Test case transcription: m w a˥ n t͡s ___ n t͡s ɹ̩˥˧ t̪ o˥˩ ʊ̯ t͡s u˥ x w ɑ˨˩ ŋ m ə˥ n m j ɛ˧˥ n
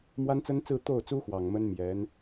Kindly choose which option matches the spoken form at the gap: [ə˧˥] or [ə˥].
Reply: ə˥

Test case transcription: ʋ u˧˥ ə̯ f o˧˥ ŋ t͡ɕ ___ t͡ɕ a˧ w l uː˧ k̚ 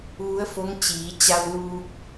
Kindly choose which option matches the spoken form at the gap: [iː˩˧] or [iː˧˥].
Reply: iː˩˧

